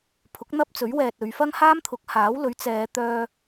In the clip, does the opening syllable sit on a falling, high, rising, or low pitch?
rising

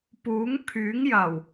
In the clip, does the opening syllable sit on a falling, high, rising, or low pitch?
rising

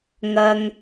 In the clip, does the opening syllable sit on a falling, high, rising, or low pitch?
low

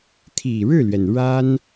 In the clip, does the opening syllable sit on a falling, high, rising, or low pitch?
low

